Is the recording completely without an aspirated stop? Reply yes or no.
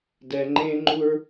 yes